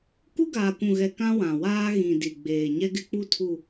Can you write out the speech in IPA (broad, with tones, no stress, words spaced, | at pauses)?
ku˦ɡaː˨kʷũ˨ɣɛ˨ kã˦wã˨waː˦ ɣĩ˨ di˨ɡ͡beː˨ ɲɛ˦ɡɪ˦k͡pu˦ tʰu˦˨